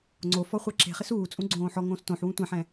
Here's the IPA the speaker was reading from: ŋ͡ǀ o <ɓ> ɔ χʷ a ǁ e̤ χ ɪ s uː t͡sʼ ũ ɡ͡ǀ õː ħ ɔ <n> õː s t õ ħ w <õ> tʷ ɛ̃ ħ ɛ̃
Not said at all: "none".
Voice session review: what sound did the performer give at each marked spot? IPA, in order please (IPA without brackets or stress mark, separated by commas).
f, ŋ, ũ